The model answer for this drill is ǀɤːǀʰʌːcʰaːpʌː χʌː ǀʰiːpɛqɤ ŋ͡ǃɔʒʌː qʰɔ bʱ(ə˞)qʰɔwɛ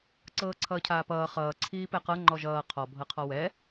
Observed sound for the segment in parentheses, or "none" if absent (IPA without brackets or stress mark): ɤ